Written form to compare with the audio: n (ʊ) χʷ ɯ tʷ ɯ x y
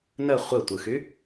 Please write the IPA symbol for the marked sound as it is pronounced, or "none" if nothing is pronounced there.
ə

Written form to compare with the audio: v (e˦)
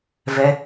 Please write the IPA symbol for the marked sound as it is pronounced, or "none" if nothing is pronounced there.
ɛ˦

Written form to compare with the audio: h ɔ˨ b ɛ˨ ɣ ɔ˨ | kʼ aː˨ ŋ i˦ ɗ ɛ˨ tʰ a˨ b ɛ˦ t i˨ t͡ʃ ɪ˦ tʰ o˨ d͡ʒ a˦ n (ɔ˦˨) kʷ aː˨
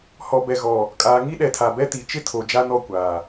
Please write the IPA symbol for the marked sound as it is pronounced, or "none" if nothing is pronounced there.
ɔ˦˨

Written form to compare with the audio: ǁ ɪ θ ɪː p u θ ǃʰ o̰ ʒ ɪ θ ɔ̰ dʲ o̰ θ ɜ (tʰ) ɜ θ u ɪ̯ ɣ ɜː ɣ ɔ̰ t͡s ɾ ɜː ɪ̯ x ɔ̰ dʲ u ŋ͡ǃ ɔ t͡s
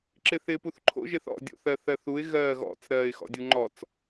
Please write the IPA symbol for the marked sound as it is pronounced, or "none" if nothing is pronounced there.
θ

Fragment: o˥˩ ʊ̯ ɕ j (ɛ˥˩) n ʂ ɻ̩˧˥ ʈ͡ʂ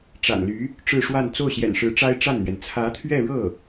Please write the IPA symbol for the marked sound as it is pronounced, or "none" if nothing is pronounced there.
ɛ̰˨˩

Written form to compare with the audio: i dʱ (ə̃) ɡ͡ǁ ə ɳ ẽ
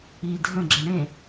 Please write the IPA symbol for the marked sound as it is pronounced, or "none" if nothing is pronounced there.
ə̃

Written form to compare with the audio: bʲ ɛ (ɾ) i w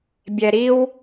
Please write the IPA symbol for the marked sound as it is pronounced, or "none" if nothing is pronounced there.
ɾ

